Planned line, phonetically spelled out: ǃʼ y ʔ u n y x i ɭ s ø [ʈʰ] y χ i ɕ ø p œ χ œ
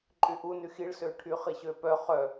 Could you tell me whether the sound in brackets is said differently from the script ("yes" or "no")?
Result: no